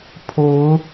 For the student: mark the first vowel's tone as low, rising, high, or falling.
rising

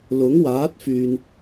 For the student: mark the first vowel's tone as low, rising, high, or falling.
rising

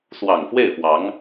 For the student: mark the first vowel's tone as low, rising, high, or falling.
low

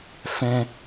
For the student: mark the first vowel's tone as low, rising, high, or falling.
low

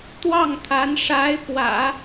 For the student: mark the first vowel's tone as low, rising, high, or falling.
falling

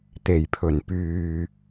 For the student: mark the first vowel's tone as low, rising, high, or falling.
low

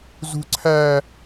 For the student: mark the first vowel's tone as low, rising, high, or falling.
high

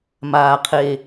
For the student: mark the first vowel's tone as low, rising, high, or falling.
low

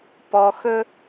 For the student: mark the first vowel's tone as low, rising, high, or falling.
low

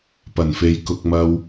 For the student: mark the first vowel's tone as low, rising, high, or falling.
low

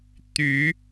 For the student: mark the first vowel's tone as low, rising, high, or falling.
rising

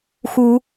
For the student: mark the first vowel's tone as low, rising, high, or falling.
rising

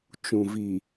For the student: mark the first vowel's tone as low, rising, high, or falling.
low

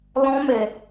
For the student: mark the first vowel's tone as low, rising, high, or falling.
high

